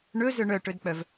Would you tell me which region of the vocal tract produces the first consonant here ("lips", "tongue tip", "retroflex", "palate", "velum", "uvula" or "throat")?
retroflex